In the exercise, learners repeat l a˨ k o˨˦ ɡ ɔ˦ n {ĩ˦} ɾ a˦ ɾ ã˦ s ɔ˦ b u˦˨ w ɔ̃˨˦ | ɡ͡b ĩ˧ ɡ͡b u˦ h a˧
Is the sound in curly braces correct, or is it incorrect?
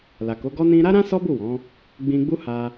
incorrect